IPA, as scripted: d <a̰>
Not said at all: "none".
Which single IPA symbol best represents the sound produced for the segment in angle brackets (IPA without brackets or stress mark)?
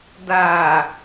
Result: a